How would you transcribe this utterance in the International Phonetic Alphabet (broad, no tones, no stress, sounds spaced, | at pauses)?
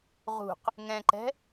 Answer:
ʁ ṳ q | ŋ ɛ̃ ǃ ɛ̤